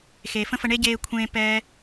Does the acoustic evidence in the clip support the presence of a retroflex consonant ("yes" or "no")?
yes